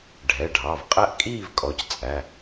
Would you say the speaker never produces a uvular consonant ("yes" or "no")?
no